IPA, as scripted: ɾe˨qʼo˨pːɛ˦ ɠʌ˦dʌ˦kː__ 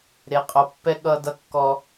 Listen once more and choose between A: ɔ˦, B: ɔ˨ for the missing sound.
A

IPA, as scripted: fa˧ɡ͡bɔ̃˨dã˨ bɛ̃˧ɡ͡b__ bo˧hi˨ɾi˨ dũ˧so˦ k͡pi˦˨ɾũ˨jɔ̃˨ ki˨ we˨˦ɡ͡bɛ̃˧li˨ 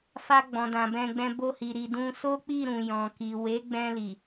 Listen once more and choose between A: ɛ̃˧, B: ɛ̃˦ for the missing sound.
A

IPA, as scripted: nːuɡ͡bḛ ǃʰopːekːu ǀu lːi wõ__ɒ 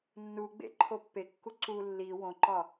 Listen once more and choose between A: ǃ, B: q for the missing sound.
A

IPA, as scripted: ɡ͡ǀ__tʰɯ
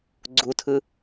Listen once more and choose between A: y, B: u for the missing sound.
B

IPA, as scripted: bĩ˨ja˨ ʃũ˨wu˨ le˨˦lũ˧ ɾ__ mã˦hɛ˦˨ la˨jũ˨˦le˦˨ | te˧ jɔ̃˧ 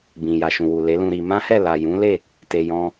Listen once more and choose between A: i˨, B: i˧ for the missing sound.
B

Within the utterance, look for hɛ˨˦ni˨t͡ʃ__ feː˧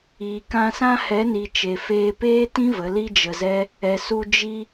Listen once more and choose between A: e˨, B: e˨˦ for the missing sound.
A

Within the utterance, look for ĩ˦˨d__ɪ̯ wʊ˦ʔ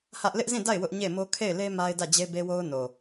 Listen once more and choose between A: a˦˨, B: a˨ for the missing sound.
A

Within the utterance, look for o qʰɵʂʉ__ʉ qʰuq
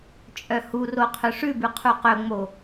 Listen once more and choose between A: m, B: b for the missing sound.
B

